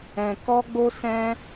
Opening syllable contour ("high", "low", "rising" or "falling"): low